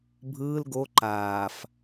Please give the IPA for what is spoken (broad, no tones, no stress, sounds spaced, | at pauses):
bʱ ɯː l ɡ o ǃ aː f